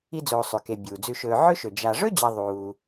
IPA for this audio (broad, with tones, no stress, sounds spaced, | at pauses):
i˦ d͡z oː˨ sˤ ʉ˩ k e˩ bʲ uː˩ d͡z ʉ˨ ʃ ɵː˨ ʕ ɵ˥ ʃ ɵ˩ d͡ʒ a˨ ʐ ɵ˥ d͡ʑ ɐ˨ ðˤ uː˩